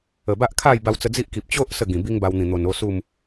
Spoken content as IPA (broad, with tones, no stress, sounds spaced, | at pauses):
ə˨˩ b a˦ ʔ kʰ a˥˧ j b a˧ w t͡s ə˧ d͡z i˦ ʔ k i˨ p̚ t͡ɕ o˦ ʔ s ə˥˧ ɡ ĩ˨˩ b i˦ ŋ b a˧ w n̪ ĩ˨˩ n̪ o˨˩ n o˥˧ s u˥˧ m